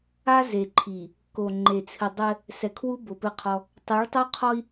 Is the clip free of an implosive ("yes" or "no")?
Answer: yes